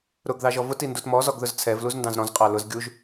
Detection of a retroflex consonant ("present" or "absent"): absent